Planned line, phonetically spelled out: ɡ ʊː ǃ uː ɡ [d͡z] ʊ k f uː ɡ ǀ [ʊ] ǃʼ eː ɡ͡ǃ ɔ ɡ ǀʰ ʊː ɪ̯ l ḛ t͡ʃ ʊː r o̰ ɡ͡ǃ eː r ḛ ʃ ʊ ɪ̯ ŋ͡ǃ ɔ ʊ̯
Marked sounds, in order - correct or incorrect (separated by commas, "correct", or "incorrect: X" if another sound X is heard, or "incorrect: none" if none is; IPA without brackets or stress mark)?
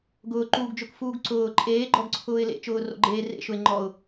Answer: incorrect: d͡ʒ, incorrect: ʊː